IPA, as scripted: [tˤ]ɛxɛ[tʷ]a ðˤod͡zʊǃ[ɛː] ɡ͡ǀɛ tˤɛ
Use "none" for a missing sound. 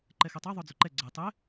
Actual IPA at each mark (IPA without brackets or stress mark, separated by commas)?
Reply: ǃ, tˤ, ɛ